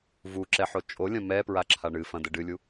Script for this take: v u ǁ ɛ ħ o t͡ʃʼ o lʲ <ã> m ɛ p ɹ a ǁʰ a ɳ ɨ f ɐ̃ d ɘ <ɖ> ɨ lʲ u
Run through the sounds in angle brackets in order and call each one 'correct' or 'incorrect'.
incorrect, correct

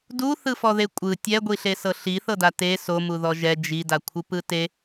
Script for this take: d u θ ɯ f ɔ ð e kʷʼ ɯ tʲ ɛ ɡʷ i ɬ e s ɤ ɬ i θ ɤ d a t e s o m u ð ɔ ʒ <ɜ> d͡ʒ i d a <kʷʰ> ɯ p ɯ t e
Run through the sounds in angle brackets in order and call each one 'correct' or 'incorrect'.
incorrect, correct

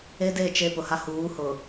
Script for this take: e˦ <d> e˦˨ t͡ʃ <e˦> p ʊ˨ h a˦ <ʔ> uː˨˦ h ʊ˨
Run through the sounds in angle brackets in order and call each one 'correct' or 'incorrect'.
correct, correct, incorrect

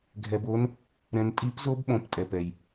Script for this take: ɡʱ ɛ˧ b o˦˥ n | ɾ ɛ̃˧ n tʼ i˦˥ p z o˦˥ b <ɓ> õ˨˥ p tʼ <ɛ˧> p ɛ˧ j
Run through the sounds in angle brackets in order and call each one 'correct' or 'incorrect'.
correct, correct

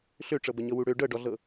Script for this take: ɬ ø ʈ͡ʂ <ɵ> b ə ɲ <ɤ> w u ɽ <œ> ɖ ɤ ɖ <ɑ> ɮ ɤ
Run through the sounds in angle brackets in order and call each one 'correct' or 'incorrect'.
incorrect, correct, incorrect, incorrect

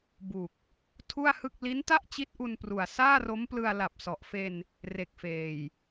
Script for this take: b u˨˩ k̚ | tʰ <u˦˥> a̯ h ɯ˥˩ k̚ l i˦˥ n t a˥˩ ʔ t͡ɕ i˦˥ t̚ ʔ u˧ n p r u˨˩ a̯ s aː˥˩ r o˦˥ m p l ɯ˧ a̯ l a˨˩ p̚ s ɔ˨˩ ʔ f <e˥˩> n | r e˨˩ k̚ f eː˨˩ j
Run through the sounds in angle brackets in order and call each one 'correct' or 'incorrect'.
incorrect, incorrect

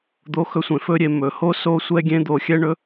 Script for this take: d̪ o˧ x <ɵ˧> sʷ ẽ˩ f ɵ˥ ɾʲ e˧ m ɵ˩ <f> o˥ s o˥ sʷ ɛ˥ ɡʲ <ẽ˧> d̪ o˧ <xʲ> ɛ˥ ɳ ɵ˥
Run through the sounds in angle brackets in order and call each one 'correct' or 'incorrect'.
correct, incorrect, incorrect, correct

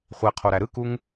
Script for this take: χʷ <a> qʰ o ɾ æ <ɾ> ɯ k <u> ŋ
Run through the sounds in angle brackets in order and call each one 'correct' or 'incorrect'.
incorrect, correct, correct

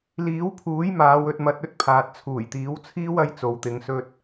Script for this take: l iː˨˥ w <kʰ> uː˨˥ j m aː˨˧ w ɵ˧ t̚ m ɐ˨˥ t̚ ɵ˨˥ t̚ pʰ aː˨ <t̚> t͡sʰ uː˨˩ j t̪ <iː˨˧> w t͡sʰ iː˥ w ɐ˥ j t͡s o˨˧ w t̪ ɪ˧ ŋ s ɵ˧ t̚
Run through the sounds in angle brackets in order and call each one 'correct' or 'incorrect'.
incorrect, correct, incorrect

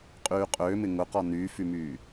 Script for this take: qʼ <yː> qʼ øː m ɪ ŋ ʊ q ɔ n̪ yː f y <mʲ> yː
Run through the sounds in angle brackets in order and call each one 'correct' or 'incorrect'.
correct, incorrect

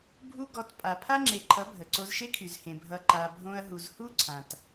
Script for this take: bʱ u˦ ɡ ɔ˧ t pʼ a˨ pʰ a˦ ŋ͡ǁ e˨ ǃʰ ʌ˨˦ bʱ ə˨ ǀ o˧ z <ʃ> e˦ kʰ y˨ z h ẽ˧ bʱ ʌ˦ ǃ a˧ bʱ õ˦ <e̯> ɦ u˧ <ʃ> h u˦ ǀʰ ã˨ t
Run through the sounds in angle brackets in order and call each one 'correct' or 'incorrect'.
correct, incorrect, incorrect

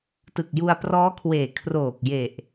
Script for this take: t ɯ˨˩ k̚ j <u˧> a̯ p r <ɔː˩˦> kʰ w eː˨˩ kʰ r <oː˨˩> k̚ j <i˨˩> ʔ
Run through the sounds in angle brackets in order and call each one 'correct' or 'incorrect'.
correct, incorrect, correct, incorrect

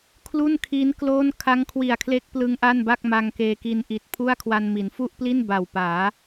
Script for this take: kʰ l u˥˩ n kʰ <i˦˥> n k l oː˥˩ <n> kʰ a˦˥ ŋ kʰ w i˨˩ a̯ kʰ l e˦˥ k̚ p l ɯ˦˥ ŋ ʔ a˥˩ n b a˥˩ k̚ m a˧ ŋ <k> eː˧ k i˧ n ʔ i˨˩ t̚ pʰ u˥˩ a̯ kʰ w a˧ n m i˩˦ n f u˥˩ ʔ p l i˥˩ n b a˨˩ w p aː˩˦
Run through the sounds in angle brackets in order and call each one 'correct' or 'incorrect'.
correct, correct, correct

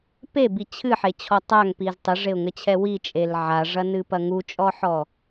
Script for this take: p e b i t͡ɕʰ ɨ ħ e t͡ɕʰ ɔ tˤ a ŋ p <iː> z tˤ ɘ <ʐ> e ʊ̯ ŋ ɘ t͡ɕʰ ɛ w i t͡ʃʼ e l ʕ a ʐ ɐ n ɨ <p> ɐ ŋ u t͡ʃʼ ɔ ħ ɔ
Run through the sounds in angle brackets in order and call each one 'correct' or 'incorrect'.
incorrect, correct, correct

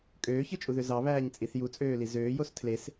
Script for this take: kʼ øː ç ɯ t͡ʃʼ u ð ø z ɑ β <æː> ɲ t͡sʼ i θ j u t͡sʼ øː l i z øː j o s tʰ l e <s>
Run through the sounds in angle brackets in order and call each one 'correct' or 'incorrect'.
correct, correct

